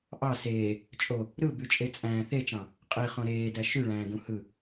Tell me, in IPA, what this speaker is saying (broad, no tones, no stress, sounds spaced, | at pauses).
ʔ ɑ s eː | t͡ʃʼ o | ɾ ɯ b y t͡ʃʼ e t͡sʼ æ̃ː θ e t͡ʃ ɑ̃ | qʼ i χ õ ɾ eː d æ ʃ y ɭ æ̃ː d ũ h ɯ